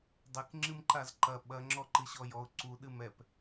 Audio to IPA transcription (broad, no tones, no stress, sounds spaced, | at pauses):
dˤ e k ŋ͡ǁ ɨ m ǃ a z ǃ ɐ ɓ ɐ ŋ͡ǁ ɔ ǃ ɨ ɕ ɔ j ɔ ʊ̯ ǀ u ɗ ɨ m ɛ p